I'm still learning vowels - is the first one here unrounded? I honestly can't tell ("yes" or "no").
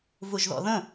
no